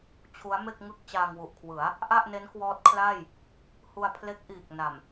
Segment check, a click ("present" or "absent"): absent